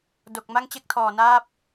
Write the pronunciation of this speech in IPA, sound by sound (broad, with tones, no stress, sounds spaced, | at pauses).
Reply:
d o˨˩ k̚ m a˥˩ ŋ t͡ɕ e˥˩ k̚ tʰ ɔː˨˩ n aː˦˥ p̚